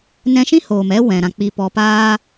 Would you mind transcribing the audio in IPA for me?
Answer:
n ɛ̃˧ ʃ ĩ˦ h oː˨ m ɛ˦ w ɛ̃˨ ɾ ã˧ k͡p i˧ p ɔ˧ p aː˧

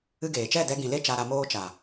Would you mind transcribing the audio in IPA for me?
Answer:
ɨ˦ ɡ eː˨ t͡ʃ ɛ˦˨ d ɛ˧ ɡ ĩ˨ l e˦ t͡ʃ a˦ ɾ a˦ m oː˦ t͡ʃ a˨

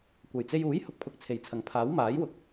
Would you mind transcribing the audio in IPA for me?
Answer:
kʷ ɐ˨˩ j t͡s e˧ j uː˨˥ j h ʊ˨ k̚ pʰ ʊ˨ k̚ t͡sʰ e˨˩ j t͡sʰ ɐ˨˩ ŋ pʰ aː˨˥ w m aː˨˥ j w ʊ˨˥ k̚

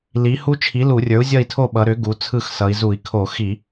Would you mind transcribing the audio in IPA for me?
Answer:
l i˩˥ h u˦˥ t͡ʃʰ i˩˥ l u˧˩˧ rʲ ə˞˩˥ u̯ zʲ ʌ˦˨ i̯ tʰ o˦˨ ɓ ʌ˩˧ ɾ ʏ˩˥ ɡ u˩˧ t͡sʰ ɯ˦˨ x s ʌ˩˧ i̯ z u˧˩˧ i̯ kʰ o˧˩˧ x i˧˩˧

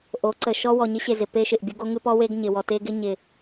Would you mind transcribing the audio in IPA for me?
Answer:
ʔ o˨˦ ǀ ə˨ ʃ ɔ˦ w ɔ˨ ɲ ɪ˦ ɕ e˨ z ɪ˨ p e˦ ʃ ɪ˨ ʔ bʲ o˦ ɡ o˦ ŋ ɨ˦ p ɔ˦ w e˦ ɡ ɲ ɪ˨ w ɔ˨ t e˦ ɡ ɪ˦ ɲ ɪ˨

